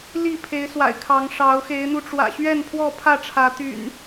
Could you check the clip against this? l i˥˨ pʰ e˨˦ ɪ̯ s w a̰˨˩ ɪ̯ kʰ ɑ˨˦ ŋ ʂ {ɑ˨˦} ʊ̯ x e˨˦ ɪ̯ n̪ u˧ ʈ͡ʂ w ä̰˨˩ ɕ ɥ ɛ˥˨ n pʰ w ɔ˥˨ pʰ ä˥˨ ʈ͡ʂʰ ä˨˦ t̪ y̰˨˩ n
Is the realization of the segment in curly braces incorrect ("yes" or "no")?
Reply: no